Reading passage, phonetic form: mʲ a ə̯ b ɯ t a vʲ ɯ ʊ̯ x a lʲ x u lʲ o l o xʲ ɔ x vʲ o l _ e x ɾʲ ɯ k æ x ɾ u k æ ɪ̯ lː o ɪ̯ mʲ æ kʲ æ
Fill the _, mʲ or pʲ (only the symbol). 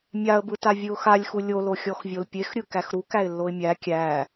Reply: pʲ